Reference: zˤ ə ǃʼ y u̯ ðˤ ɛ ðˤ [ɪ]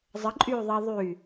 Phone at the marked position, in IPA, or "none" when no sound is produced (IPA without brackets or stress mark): y